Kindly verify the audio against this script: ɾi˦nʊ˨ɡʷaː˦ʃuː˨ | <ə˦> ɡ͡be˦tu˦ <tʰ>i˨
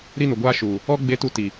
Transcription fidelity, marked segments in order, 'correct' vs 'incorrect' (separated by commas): incorrect, incorrect